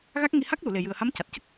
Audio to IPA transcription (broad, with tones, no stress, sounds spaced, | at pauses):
ɣ a˦˥ k̚ ŋ i˧ h a˦˥ k̚ l u˨˩˨ l e˨˩ j ɨ˨˩ ə̯ h a˧˥ m c a˨˩ t̚ c ə˦˥ k̚